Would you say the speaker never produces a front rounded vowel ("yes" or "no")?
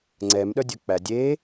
no